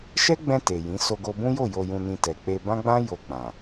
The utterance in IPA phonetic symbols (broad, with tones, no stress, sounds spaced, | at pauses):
ʃ ɛ˦ ɡ͡b ɛ̃˧ t e˨ j ĩ˨˦ s o˧ ɡ o˧ b ũ˦ j o˦˨ j o˧ j ũ˧ n ĩ˧ t ɛ˨ k͡p e˧ b ã˦ ɡ͡b ã˦ j o˧ k͡p ã˨